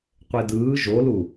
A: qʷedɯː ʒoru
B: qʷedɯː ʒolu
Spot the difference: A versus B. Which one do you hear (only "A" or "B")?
B